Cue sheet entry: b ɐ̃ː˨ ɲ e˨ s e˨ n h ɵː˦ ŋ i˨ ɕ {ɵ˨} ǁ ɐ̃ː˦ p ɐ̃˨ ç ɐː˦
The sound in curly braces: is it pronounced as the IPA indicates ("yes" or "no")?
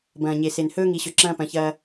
yes